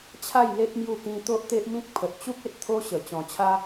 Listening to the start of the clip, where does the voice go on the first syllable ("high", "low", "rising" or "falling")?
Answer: falling